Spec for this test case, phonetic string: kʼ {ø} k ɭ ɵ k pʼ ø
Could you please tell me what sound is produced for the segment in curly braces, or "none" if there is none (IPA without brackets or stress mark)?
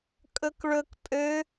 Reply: ɵ